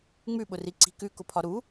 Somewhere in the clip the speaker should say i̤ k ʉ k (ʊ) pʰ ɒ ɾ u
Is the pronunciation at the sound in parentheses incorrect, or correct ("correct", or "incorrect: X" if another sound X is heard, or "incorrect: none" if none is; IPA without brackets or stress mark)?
correct